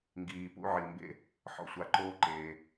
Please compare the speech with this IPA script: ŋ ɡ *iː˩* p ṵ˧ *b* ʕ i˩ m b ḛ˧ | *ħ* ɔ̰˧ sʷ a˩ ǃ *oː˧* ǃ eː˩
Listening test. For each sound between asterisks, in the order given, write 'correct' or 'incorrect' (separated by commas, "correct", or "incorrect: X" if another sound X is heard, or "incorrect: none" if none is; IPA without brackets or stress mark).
correct, incorrect: none, correct, correct